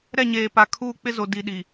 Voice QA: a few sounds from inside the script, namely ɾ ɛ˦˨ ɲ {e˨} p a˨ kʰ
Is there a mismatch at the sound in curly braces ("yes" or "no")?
yes